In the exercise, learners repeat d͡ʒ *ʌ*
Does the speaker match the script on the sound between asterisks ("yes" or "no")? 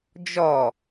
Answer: no